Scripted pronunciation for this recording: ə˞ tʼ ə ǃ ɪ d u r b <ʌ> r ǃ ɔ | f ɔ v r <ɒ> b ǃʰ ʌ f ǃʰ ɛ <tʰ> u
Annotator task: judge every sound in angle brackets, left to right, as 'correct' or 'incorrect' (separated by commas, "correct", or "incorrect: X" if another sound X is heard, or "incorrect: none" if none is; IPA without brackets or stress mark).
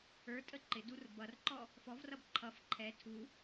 correct, incorrect: ʌ, correct